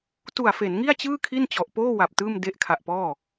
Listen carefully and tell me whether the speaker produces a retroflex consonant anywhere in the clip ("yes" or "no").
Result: no